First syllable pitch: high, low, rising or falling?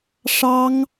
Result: high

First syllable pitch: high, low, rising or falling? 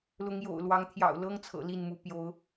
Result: rising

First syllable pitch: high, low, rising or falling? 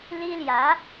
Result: high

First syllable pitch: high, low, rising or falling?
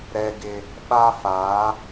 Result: high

